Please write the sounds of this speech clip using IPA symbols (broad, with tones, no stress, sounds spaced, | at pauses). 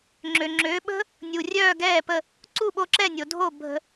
ŋ͡ǁ ø˩ ŋ͡ǁ øː˩˥ ɓ ə̤˥ | nʲ u˩ rʲ œː˥˩ ɡ ɛː˥˩ p ə˥˩ | ǀ u˥˩ ɓ o˧ ǁ ɛ˥˩ nʲ o˩ dʱ o˥˩ bʱ ə̤˧